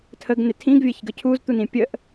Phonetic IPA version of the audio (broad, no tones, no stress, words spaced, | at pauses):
tʰəɡnɪ tʰĩɡvʲɐçɡə cʰuzt̪unĩ pʲəʔ